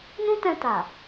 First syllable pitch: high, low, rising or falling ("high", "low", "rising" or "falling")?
high